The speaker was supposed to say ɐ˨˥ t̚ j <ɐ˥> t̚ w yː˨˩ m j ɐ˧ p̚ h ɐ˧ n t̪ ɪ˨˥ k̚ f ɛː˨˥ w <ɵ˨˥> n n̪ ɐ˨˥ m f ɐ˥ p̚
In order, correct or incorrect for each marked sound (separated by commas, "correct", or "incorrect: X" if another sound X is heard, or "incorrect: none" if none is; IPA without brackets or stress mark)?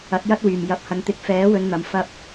correct, incorrect: ɵ˨˧